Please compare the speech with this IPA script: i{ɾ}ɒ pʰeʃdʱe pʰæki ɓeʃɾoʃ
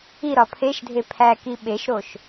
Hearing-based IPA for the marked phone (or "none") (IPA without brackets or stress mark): ɾ